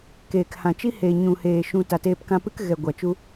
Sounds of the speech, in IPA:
keː˨khã˨t͡ʃi˦ heː˨ɲũ˨heː˨ ʃũ˧ ta˨teː˧pkã˧pɨ˦k ɣɛ˨ ɡʷa˨t͡ʃu˦

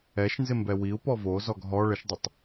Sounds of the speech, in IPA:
ɛʃnzɪmbɛ wiu̯pɔ vozɔɡ ɦɔ ɭəʃdˤətˤ

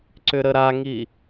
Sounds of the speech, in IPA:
ǀʏɾəɾaŋi

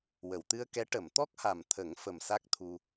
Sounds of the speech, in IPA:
wə˨˩˨wt̪ɨ˧ə̯kɛ˧˥ ʈə˨˩˨mt̪ɔ˦˥k̚ha˨˩mt̪ʰə˨˩˦ŋ fə˨˩msa˦˥k̚t̪ʰu˧

